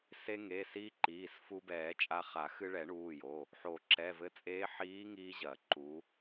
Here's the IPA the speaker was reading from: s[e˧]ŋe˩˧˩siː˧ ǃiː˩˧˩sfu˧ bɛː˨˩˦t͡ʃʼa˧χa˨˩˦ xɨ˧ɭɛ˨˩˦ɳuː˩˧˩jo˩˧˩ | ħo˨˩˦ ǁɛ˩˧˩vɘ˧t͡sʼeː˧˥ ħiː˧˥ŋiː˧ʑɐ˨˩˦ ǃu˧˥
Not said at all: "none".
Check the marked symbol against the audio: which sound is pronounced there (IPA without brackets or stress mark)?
e˧